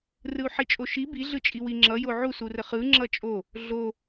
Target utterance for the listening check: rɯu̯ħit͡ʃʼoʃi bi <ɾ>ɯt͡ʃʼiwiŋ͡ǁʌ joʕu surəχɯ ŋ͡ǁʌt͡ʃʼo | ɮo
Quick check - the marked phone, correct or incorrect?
incorrect